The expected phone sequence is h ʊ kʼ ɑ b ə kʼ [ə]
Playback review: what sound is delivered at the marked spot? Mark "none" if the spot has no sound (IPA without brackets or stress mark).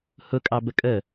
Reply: ə